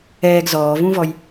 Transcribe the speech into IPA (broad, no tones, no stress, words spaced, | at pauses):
ɛːɡ zɔːvũvɔj